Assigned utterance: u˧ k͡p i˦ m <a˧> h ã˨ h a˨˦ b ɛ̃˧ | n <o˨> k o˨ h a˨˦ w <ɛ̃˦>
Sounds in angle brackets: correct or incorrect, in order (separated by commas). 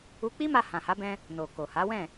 correct, correct, incorrect